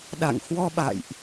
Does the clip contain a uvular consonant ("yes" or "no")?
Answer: no